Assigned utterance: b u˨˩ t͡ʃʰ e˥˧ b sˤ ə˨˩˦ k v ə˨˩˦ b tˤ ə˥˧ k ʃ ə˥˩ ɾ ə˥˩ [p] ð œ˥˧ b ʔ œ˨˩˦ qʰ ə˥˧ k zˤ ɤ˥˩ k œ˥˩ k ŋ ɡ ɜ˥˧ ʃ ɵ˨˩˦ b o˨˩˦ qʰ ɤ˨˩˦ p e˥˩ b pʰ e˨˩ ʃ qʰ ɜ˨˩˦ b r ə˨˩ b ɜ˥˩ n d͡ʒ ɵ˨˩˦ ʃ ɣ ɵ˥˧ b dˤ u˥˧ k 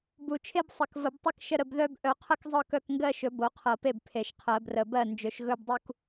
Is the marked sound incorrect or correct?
incorrect